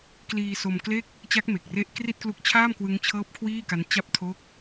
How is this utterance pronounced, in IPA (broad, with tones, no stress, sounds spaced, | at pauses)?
k l iː˧ s o˧ m k l e˥˩ k̚ | t͡ɕ a˦˥ k̚ m e˨˩ k̚ r e˦˥ ʔ k r i˥˩ t̚ k l u˦˥ k̚ t͡ɕʰ aː˥˩ m k w ɯ˦˥ ŋ t͡ɕʰ ɤː˦˥ p̚ kʰ w iː˥˩ k a˦˥ n t͡ɕ a˦˥ p̚ tʰ o˦˥ k̚